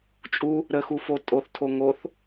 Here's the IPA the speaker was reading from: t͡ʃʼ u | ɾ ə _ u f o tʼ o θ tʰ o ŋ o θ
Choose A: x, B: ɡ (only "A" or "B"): A